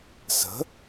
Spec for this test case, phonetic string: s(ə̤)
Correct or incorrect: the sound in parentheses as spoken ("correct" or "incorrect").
correct